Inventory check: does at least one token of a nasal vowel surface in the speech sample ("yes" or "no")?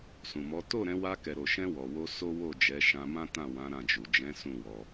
yes